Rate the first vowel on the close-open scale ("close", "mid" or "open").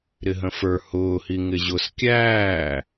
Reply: close